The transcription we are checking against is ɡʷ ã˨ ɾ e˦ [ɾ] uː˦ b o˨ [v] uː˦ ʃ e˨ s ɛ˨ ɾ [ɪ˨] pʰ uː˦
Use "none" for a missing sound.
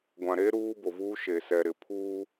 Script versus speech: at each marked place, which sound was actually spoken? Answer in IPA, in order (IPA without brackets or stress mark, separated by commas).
ɾ, v, ɪ˨